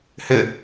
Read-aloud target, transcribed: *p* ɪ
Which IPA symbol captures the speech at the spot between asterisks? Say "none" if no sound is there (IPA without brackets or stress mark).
h